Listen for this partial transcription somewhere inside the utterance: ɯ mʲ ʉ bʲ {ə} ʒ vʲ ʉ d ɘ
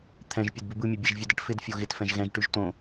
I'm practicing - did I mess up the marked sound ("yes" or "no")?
yes